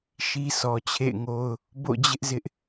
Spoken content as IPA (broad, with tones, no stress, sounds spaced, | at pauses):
ʃ i˦ s ɔ˨ t͡ɕʰ ḛ˦˨ ɪ̯ ŋ o˦ ʊ̯ | b o̰˦˨ d͡ʑ ɪ˦ ʔ z ɪ˦ ʔ